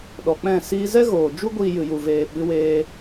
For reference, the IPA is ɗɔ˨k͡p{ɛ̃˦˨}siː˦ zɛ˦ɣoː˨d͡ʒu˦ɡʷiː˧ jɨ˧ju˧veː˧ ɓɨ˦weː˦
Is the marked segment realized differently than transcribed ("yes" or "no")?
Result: no